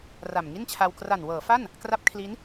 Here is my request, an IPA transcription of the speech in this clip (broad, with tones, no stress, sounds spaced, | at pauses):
r a˨˩ m ŋ i˥˩ n t͡ɕʰ a˧ w k r a˨˩ n w ɤː˩˦ f a˥˩ n | k r a˦˥ p̚ kʰ l i˦˥ n